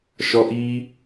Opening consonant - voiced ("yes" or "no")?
no